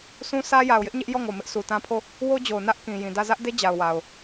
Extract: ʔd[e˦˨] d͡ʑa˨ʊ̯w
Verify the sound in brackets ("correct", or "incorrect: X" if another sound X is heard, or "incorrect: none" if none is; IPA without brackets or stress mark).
incorrect: e˦